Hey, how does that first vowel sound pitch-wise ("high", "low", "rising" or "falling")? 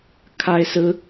high